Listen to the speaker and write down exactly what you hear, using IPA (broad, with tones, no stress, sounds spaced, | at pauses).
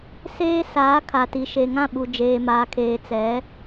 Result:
s eː˦ s aː˨˦ kʰ a˨ t i˨ ʃ e˨ ŋ ã˦˨ ɓ u˨ d͡ʒ eː˨ m aː˨ kʰ eː˨ t͡s ɛ˨˦